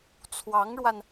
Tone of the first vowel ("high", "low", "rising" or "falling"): rising